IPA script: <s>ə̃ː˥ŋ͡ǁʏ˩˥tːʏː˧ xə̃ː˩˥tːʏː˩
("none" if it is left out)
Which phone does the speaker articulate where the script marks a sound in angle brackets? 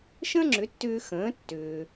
ʃ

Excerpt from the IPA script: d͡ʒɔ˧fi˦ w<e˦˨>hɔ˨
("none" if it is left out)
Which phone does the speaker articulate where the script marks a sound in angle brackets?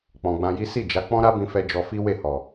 e˦˨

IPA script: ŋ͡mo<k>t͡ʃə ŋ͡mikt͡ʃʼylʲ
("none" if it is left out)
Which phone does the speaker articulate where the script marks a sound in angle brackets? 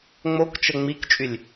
k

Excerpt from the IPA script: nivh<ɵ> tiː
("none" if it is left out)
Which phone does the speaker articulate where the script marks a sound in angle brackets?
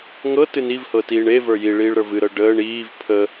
ɤ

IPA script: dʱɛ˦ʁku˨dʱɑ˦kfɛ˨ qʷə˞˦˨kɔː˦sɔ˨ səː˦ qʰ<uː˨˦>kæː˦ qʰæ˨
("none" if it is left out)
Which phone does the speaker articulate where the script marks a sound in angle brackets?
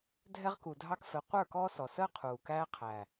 uː˨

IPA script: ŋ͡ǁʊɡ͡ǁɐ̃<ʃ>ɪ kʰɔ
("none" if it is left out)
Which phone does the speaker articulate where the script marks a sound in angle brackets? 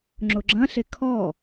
ɬ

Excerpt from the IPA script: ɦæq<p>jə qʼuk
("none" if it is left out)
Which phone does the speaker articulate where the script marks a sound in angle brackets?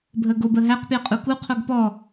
p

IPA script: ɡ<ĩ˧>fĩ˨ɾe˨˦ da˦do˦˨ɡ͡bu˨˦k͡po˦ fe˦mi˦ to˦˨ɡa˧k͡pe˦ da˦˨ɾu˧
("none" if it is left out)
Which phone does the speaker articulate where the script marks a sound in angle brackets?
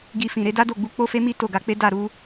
i˧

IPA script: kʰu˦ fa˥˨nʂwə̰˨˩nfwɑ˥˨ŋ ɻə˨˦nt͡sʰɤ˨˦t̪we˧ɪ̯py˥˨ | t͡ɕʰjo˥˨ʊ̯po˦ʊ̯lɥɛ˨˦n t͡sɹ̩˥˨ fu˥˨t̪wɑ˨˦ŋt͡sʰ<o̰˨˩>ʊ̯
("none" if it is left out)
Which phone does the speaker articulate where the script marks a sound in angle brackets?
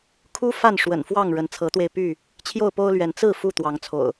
o̰˨˩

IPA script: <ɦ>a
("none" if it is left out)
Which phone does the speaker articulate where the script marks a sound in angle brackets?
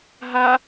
ɦ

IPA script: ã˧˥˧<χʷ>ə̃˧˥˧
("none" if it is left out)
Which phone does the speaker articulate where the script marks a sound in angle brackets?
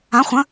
χʷ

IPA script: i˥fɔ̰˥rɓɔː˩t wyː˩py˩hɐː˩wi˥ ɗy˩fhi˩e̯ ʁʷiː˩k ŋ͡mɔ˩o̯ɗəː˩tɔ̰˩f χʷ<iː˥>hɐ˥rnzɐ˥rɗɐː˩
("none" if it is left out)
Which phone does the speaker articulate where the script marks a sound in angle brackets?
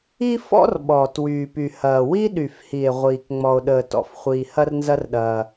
iː˩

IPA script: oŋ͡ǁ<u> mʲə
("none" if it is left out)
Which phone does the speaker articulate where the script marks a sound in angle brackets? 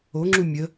u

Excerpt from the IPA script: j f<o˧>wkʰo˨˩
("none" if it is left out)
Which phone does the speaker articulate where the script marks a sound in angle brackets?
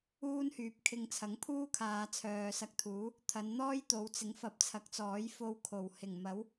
o˧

